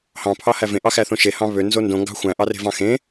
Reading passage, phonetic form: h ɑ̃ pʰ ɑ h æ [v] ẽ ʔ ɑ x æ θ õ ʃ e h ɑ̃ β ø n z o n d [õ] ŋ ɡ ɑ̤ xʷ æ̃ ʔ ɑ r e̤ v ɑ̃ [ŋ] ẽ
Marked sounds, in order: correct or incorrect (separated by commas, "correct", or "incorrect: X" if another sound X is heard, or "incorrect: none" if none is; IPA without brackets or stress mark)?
correct, correct, incorrect: x